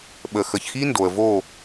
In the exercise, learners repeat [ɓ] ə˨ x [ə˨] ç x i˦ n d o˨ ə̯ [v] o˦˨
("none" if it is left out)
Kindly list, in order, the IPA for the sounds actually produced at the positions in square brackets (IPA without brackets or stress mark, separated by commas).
ɓ, ə˨, v